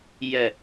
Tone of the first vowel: low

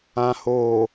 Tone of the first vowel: low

